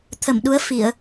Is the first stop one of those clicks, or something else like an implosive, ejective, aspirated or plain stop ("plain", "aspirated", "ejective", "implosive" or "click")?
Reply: aspirated